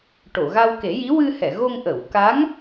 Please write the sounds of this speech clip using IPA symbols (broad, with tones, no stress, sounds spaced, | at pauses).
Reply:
ʈ o˨˩˨ ɣ a˧ w k e˨˩˦ j i˧˥ w ɨ˧ h ɛ˨˩˨ ɣ o˧ ŋ ʔ ə˨˩˨ w k a˧˥ ŋ